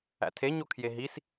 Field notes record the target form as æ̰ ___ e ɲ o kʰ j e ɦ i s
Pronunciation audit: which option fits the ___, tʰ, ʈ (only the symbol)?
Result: tʰ